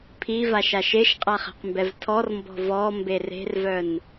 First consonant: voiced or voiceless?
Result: voiceless